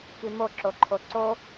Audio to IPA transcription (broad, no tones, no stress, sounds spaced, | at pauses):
k i m o ǁ o ǃʰ o ǀ o